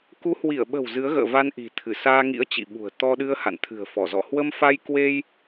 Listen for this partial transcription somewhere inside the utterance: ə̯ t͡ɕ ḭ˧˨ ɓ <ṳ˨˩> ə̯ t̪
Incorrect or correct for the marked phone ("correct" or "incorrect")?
correct